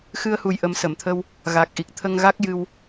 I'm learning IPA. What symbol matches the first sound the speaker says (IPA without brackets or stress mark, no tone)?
x